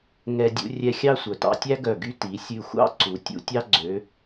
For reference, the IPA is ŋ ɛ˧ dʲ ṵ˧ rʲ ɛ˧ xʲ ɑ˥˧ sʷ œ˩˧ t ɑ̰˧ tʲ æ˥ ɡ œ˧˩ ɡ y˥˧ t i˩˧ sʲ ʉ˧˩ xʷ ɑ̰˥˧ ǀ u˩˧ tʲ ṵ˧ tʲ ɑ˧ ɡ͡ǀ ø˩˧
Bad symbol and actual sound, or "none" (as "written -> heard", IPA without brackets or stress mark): none